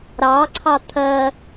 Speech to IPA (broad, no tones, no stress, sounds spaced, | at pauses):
ɾ ɑ ǀʰ ɑ t̪ʰ ɜ